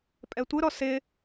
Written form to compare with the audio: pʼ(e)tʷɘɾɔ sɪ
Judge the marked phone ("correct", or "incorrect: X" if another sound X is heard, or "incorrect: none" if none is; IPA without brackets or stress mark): incorrect: ɛ